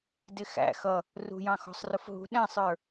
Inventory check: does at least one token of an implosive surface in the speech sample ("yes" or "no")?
yes